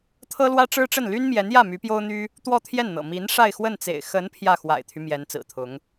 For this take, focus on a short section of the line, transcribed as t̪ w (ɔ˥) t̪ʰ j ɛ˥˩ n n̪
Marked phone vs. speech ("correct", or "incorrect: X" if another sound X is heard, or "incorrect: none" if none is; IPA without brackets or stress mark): incorrect: ɔ˥˧